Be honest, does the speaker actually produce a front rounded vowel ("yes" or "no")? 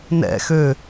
yes